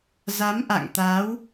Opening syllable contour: rising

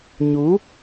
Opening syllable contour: rising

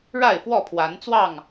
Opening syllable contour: falling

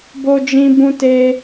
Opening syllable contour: high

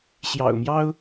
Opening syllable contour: low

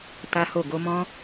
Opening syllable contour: high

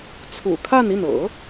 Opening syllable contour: low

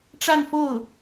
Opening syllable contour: falling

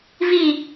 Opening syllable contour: low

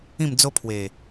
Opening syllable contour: falling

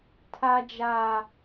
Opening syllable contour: high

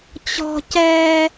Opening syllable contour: high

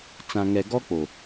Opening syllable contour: low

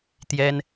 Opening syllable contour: high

